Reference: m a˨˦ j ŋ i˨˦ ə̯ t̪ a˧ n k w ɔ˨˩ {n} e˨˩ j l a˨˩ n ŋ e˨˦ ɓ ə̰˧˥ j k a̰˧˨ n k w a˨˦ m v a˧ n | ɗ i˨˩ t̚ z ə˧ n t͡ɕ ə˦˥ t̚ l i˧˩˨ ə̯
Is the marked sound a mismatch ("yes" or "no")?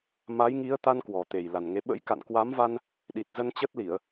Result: yes